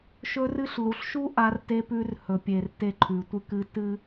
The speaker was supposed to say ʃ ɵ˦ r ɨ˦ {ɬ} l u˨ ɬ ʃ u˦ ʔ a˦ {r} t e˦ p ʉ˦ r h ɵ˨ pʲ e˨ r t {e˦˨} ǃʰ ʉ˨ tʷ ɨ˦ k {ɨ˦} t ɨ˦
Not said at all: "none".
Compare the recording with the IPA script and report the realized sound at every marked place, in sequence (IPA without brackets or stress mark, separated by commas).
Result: ɬ, r, e˦˨, ɨ˦